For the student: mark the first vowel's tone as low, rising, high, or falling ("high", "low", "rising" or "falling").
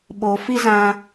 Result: low